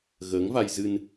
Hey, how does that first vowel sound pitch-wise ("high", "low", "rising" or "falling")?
rising